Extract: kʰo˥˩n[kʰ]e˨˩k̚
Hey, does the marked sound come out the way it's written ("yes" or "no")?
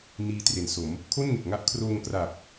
no